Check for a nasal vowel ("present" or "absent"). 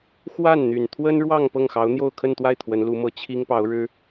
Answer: absent